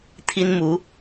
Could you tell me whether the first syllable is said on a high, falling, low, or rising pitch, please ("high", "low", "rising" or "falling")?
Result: high